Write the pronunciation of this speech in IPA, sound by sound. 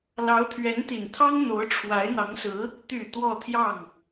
l ɑ˧˥ ʊ̯ t̪ʰ ɥ ɛ˧˥ n t̪ i˨˩ n t̪ʰ ɑ˥ ŋ n̪ o˧˥ ʊ̯ ʈ͡ʂʰ w a˧˥ ɪ̯ n̪ ɑ˧˥ ŋ s ɹ̩˧˥ | t̪ y˨˩ t̪ w ɔ˥˧ t̪ʰ j ɑ˥˩ ŋ

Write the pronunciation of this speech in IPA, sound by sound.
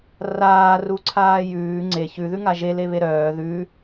r aː r u ǀʰ aː j ʉː ŋ͡ǀ e ç ʉ ð ʉ ŋ a ʒ e l e β e ɾ œː ð ʉ

